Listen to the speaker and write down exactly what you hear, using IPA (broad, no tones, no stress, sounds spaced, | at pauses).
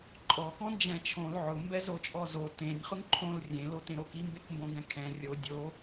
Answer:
ǃʼ ɔ k ɔ̃ n d͡ʒ ɛ̃ t͡ʃʰ õ l ʕ ʊ m b ɛ z o t͡ʃʼ ɔ z o t ẽ nʲ χ ʊ ŋ ǃʰ õ l rʲ ẽ l o t ẽ ɾ o k i m b e k m b õ ɡ ɛ̃ kʰ ɛ̃ rʲ o dʲ o